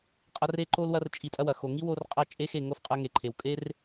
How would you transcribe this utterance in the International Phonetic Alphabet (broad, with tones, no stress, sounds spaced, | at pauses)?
qʼ ɐ˦ r e˦ ǃ o˦ l w ɐ˦ r t͡ʃʼ i˧ tʼ ɐ˦ w ɐ˨ x o˨ ŋ i˦ w o˧ r qʼ ɐ˦ t͡ʃʼ e˦ x e˦˨ ŋ o˦ f qʼ ɐ˧ ŋ e˨ ǃʰ e˨ w kʼ e˦ r